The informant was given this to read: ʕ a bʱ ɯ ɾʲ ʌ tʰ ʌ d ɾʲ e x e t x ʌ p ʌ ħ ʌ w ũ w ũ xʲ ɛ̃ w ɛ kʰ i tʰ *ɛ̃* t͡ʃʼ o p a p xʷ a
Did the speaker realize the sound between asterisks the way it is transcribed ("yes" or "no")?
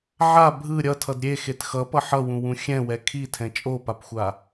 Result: yes